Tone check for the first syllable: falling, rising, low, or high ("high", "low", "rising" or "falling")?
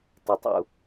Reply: low